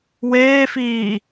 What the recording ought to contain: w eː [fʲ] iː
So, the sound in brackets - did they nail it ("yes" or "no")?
no